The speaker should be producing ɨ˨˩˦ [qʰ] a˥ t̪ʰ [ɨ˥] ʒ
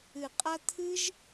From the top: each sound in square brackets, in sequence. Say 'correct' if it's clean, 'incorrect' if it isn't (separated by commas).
incorrect, correct